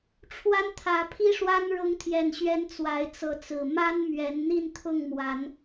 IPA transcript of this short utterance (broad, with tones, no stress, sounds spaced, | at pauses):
ʈ͡ʂʰ w a˦ n t̪ʰ ä˨˦ pʰ i˦ ʂ w a˦ n ɻ ʊ˨˦ ŋ t̪ʰ j ɛ˨˩ n ɕ ɥ ɛ˨˦ n t͡s w a˨˦ ɪ̯ t͡s ɤ˨˦ t͡s ɹ̩˨˩ m a˦ n m ɥ ɛ˨˦ n n̪ i˥˨ n t̪ʰ ʊ˥˨ ŋ m w a˨˦ n